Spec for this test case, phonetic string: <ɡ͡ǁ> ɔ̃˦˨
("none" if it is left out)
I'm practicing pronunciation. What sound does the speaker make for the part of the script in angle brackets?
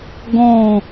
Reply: ɡ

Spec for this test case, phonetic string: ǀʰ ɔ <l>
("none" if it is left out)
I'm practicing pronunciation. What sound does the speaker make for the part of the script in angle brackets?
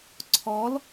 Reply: l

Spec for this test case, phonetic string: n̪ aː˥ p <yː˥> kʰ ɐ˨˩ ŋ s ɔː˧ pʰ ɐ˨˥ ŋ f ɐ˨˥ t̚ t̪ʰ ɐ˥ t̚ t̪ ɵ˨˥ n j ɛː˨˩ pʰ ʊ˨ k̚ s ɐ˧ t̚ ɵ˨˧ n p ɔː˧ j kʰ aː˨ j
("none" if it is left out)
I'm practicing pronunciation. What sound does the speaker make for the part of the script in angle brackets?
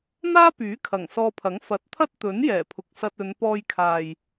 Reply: yː˨˥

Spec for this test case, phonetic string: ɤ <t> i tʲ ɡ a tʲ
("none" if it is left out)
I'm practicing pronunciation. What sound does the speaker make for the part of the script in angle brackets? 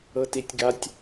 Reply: t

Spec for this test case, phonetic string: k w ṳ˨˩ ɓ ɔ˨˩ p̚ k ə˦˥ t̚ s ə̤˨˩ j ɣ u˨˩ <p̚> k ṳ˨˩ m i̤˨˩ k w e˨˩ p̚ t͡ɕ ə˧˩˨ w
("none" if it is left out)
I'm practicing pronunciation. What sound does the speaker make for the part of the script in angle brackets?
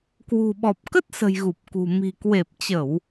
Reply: p̚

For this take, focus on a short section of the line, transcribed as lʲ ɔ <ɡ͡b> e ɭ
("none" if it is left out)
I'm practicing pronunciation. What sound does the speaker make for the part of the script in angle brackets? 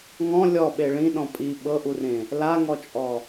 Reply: ɓ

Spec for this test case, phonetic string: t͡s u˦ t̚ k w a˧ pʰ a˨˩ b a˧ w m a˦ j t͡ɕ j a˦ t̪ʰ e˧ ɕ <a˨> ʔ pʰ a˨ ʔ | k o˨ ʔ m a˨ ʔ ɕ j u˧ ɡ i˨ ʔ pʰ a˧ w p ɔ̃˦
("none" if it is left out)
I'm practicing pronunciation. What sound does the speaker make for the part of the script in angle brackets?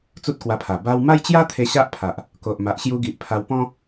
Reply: a˦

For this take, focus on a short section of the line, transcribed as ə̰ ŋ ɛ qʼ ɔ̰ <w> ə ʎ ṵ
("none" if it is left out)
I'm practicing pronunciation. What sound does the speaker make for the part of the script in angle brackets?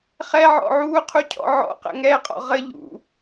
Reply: ʁ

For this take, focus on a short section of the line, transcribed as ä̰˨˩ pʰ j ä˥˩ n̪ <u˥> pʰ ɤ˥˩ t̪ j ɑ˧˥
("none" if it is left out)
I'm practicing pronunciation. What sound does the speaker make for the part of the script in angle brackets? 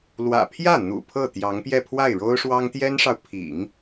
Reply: ṵ˨˩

